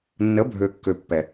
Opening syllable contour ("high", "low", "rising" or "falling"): rising